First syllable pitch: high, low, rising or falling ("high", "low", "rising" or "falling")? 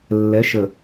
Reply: rising